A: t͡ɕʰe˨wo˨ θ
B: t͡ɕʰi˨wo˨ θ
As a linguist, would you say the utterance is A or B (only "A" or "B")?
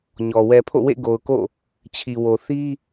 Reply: B